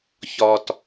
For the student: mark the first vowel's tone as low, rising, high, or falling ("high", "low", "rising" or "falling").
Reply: low